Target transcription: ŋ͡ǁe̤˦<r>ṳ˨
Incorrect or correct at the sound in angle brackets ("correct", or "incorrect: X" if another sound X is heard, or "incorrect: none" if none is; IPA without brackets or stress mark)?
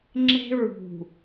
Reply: incorrect: ɹ